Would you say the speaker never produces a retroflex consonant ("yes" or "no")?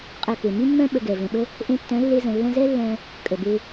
yes